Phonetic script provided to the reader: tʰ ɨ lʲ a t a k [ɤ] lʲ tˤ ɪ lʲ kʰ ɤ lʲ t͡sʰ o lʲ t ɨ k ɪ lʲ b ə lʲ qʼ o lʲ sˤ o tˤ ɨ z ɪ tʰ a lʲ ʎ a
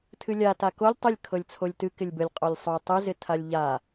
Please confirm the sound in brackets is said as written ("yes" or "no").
no